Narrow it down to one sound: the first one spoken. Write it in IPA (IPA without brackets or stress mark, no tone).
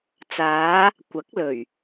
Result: t͡s